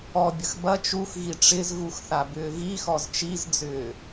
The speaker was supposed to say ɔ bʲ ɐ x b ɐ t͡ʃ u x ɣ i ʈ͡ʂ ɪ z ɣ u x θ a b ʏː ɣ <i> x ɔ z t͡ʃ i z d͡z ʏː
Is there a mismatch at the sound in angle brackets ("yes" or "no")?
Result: no